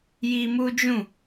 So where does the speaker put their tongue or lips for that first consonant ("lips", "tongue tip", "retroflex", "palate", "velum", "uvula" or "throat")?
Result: palate